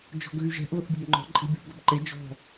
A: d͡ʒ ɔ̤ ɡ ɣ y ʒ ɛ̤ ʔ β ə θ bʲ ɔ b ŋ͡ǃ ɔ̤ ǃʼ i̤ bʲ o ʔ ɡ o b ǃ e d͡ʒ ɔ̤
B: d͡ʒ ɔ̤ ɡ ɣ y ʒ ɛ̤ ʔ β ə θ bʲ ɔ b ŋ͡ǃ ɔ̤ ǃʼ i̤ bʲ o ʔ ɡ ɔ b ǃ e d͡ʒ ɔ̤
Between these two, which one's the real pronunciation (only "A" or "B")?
A